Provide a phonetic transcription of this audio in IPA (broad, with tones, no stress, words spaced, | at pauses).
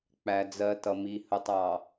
k͡pæ˨d͡zɜ˨tʌ˨mi˨ hə˨tˤɑ˨